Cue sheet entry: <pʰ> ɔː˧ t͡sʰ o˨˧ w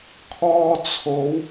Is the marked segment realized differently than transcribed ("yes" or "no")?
yes